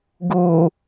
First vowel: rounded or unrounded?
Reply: rounded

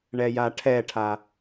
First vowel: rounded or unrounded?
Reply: unrounded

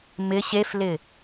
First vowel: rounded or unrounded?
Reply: unrounded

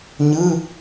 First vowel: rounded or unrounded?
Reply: unrounded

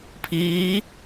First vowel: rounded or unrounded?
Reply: unrounded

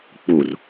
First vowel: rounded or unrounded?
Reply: rounded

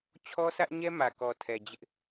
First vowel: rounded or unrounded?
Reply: rounded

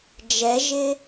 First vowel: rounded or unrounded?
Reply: unrounded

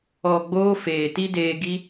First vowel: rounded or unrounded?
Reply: rounded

